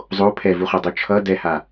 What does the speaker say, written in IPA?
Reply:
zˤo pʰɛvuχodˤu t͡ʃʰʌ dɛha

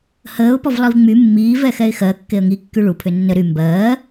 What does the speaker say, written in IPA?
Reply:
həːʊ̯pɔvlˠiv ŋ͡my mːiːvɛxɛɪ̯ xɜkːeə̯ ŋikːy ɭupʰʏ nːə ɾy mbɜː

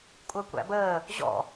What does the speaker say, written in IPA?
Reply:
kʷʼɜkʷæ̰bəː | ʑɔ̰

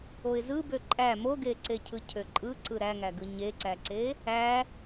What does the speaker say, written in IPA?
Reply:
oɪ̯zɯbø ǃʼæ moɡeǀecʰɯ cʰøǃʼɯǀɯ ɾæŋæɡɯ ɲeǀæǀe | æ

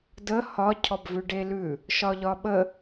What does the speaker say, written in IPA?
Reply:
də hɒ cʰɔbvʉɖelʉ | ʃɒʎɒɓə

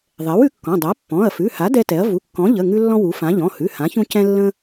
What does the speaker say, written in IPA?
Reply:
ðˤɛ˩˥wʉ˩˥kːɔ̃˩˧˩ dˤa˩˥ pːɔ̃˩˧˩ɐ̯fʉ˩˧˩ha˩˥ dɛ˦tɛ˩˥ɐ̯ vu˩˧˩kːɔ̃˩˥ʎə˩˧˩ ŋʉ˦lːɔ̃˦ wu˩˥fã˩˥ ʎɔ̃˩˧˩hʉ˩˧˩ hã˩˥çũ˦ cɛ̃˦ lːə̃˦

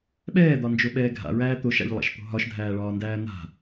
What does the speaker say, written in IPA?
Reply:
ɓɛːd̪ɒnd͡ʒoɓɛː ɡʱa̰ɹæː t̪oʃa̰ʎlˠa̰ʃt̪o̤ ɦɒʃdʱæːɭɒːndæː n̪a̤

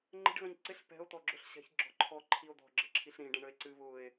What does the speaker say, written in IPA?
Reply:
ŋ͡ǃə̤ɖɣə̃ɲ ǀɪɬ pɛ̤o̯ t̪ɔɡ͡ǁʊɬɕɛ̤ç ɡ͡ǁɔ̤ǃʰɔ ǃʰio̯d̪ɔ̤ɡ͡ǁə̤ ǁʰiɬɾĩɖə̃ ɳəe̯ǀɨ βʊe̯

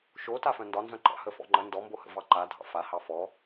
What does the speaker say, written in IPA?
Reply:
ʃo tafœ̃ndɒ nzœ̃ǃɑ̰ həfɔ̰ŋ͡ǃə ndɔmbohə̰vɑ ǃadʱɑ̰ fa hɑfɔ

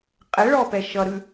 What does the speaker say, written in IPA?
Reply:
qʼɛɭɔpɛ ʃʌɾʉ

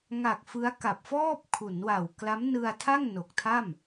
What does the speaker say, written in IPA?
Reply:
ŋa˨˩k̚ fɯ˦˥a̯ ka˨˩p̚fɔː˥˩p̚ kʰu˩˦nwa˨˩w kla˦˥mnɯ˧a̯tʰa˥˩ŋ no˨˩k̚tʰa˥˩m

